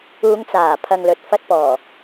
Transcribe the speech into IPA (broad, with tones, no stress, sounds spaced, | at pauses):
uː˨˧ ŋ t͡s aː˨˩ pʰ ɐ˨ ŋ l ɵ˨ t̚ f ɐ˧ t̚ p ɔː˨˩